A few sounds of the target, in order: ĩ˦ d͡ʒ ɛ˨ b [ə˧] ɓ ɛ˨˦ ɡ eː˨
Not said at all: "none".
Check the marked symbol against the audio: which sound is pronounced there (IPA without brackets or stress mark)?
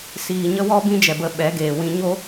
ə˧